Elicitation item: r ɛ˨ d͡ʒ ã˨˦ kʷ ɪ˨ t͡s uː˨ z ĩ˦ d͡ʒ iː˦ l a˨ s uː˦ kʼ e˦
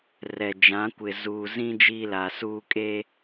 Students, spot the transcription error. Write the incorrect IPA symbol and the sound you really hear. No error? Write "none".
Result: t͡s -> z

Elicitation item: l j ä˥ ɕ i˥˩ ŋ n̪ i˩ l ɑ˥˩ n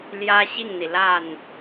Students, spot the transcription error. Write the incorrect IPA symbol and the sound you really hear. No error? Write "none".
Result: ɑ˥˩ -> a˥˩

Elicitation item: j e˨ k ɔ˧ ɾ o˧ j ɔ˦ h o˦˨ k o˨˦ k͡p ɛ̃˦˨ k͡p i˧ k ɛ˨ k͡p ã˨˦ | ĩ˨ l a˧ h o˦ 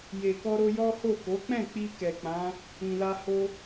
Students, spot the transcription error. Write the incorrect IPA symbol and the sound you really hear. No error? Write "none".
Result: none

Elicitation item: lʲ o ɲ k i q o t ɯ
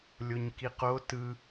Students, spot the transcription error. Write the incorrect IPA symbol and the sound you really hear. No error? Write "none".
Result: none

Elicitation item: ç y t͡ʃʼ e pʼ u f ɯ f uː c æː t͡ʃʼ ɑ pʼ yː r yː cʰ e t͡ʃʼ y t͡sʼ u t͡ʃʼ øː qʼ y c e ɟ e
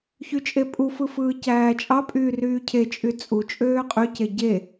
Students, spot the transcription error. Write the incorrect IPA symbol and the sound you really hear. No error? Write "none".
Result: uː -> ɯː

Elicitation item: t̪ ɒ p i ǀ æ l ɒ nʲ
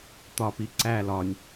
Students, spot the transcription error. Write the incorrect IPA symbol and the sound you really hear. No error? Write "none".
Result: none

